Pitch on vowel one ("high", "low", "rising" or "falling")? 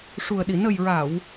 low